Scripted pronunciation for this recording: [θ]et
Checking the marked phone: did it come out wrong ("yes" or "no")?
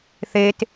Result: no